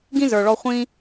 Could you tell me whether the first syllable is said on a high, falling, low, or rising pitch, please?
high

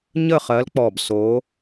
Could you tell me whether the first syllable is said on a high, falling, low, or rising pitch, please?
falling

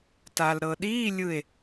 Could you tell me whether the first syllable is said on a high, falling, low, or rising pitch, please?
low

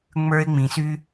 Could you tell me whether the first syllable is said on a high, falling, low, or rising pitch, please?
high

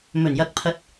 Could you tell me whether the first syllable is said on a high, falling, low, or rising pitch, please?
low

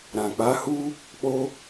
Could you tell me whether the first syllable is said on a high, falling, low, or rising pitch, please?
low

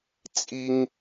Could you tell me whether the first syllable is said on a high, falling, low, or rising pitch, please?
high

